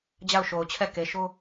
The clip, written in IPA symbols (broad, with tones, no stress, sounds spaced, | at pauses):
d͡ʑ a˦˨ ʊ̯ ʃ o˨ ʊ̯ t͡ɕʰ ɛ˦˨ k e˨ ʃ o˦